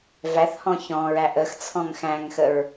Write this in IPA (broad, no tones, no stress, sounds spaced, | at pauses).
v æ θ h ɔ̃ ç ɔ̃ ɹ æ ʔ ə x t͡sʰ ɔ̃ ŋ x æ̃ ŋ x ə ɹ